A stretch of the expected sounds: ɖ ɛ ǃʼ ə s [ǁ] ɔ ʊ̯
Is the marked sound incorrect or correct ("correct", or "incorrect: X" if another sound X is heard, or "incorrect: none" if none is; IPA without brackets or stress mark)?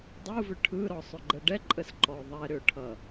incorrect: ǃ